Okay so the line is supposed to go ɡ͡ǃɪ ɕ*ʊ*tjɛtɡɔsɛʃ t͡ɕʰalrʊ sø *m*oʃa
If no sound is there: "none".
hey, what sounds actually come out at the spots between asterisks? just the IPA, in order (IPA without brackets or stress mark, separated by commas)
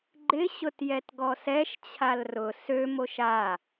ʊ, m